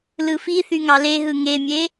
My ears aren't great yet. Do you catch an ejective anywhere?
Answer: no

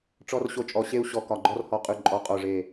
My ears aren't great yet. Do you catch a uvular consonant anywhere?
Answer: yes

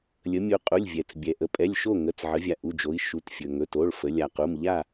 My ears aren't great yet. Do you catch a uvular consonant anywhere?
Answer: yes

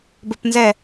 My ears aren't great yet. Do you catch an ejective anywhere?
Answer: no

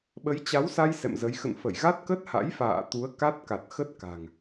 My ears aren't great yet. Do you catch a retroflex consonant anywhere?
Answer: no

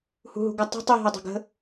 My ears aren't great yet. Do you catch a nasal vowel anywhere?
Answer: no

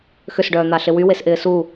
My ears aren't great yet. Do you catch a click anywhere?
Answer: no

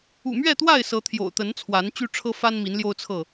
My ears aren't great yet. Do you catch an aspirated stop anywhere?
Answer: yes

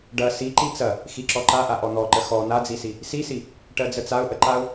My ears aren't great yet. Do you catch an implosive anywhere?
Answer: no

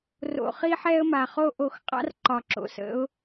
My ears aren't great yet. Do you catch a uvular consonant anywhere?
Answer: yes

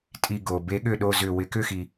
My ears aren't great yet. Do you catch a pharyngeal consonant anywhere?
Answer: no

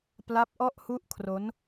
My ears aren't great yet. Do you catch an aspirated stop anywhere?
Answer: yes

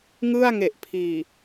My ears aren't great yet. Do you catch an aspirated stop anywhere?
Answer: yes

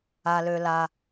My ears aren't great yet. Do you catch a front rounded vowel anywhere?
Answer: yes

